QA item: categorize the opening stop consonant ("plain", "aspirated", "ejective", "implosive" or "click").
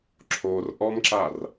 click